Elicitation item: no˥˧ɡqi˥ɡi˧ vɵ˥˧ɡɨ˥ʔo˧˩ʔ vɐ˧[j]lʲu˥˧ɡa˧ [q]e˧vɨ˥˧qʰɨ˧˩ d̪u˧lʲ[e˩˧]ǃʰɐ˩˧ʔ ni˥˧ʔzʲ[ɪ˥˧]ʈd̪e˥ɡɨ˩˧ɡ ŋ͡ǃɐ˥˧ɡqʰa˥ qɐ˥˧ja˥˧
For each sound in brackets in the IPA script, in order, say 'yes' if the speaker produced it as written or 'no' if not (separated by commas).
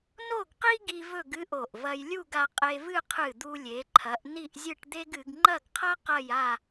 yes, no, yes, no